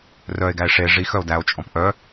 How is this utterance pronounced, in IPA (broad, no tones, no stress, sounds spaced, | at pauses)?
r œ e̯ ɡ æ e̯ ʂ e ʐ i x œ o̯ d æ o̯ t͡ʃʼ ɔ̃ p ʔ œ